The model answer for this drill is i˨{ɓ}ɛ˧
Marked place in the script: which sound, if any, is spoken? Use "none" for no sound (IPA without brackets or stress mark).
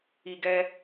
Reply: ɡ